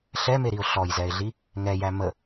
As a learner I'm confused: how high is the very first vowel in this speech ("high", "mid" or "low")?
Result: mid